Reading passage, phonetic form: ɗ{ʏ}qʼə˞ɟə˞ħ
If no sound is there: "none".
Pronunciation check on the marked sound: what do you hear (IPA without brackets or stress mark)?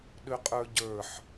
ʏ